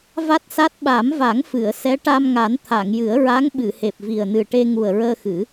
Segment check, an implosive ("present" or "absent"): present